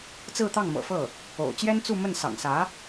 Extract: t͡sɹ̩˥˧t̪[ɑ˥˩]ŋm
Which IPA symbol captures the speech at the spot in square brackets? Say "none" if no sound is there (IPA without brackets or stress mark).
ɑ˥˩